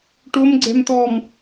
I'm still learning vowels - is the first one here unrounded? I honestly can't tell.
no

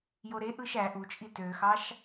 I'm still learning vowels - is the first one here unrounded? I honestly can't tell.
no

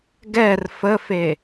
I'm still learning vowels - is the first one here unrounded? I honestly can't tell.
yes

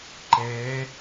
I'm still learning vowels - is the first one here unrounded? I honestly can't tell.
yes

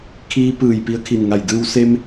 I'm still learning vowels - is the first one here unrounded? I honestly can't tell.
yes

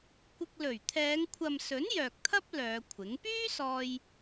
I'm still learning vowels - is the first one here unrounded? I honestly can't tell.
yes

